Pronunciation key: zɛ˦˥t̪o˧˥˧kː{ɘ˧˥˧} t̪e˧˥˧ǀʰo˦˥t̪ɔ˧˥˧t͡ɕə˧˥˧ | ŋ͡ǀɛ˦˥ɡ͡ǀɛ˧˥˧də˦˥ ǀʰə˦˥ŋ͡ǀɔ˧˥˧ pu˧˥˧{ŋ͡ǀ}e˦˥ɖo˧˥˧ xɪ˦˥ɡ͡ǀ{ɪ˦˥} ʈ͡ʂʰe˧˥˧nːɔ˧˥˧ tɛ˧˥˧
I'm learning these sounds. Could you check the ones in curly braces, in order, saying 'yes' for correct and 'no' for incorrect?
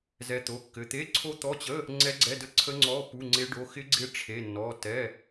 yes, yes, yes

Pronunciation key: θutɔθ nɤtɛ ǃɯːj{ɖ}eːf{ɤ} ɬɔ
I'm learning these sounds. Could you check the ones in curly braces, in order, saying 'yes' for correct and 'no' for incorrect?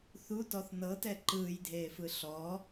no, no

